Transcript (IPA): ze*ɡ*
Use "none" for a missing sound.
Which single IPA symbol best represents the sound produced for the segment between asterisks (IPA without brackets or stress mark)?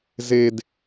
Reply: d